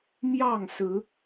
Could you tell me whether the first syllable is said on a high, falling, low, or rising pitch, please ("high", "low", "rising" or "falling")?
falling